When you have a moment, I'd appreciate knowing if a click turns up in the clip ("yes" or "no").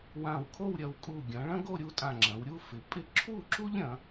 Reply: yes